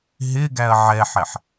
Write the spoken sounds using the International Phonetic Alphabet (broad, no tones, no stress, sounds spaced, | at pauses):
ɦ ɪ ɡ æ ɐ̯ ʕ ɛ ħ ɛ ħ